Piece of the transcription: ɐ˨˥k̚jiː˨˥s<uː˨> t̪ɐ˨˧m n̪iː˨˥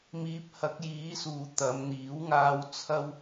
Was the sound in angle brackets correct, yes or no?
yes